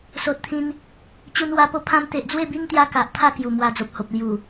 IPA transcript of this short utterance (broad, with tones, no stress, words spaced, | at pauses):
so˨t̚t̪ʰĩ˧n | t͡ɕu˧nwa˧po˦ pʰã˧mt̪e˨ʔd͡zwe˥˧bi˦ŋ t̪ja˦ka˨ʔt̪ʰa˥˧ kju˨˩mwa˧d͡zo˨p̚ho˨p̚ lju˨˩